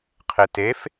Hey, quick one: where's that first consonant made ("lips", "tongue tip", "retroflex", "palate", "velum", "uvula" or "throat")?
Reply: uvula